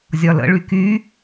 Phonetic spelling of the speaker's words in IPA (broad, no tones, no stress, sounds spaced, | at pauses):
zʲ ɒ l ə̰ ɭ y k y